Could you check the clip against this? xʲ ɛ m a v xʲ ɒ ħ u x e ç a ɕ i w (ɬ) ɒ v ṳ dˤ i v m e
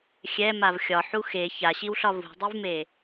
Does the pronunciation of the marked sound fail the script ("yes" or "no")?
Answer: no